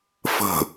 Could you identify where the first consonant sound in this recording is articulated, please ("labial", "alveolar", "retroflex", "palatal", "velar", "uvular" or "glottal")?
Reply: labial